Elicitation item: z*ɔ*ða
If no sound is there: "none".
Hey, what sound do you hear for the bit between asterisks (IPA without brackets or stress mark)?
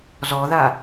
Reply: ɔ